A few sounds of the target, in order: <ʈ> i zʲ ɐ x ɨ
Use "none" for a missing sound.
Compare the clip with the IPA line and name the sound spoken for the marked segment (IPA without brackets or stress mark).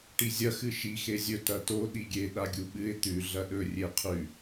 ʈ